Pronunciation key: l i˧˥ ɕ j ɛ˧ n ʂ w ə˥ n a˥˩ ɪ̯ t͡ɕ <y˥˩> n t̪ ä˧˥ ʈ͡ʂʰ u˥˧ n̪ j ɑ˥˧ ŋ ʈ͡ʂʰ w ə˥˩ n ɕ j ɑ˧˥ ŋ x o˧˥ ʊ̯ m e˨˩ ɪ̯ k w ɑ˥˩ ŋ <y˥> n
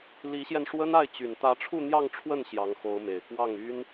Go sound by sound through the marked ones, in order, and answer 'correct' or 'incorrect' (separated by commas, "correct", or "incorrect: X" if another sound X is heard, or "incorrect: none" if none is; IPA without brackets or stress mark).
incorrect: y˨˩, correct